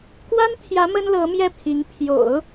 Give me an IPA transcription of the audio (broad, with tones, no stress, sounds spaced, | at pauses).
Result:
k w a˥ n t̪ʰ j ä˧˥ m ə˥ n l ɤ˧˥ m j ɛ˥˩ pʰ i˧˥ ŋ pʰ j o̰˨˩˦ ʊ̯